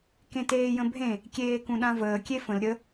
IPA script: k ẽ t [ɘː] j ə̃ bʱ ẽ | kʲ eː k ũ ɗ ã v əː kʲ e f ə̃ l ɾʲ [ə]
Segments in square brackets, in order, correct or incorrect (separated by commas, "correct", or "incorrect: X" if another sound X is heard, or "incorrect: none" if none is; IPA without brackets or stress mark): incorrect: eː, correct